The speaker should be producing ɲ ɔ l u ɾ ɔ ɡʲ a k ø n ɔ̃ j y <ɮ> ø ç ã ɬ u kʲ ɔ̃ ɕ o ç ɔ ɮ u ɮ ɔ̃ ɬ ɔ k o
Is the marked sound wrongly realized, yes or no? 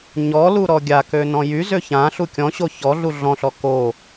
yes